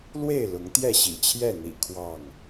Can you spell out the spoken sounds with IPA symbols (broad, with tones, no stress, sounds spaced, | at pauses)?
l w e˥˨ ɪ̯ l ʊ˨˦ ŋ t̪ j ɛ˥˨ ɕ ḭ˨˩ t͡ɕʰ j ɛ˥˨ n̪ ḭ˨˩ kʰ w ɑ˥˨ ŋ